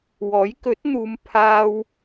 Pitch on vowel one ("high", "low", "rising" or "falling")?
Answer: rising